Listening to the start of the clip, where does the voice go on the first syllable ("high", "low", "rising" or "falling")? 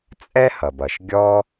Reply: high